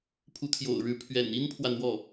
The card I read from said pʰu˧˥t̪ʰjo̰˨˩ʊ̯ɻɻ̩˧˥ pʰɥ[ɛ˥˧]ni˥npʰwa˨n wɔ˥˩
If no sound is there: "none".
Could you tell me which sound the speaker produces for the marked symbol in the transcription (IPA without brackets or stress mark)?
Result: ɛ̰˨˩